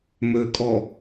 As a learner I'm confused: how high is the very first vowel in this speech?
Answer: mid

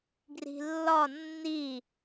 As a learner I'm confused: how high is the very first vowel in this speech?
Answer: high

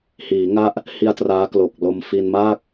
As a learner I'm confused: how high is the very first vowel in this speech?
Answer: high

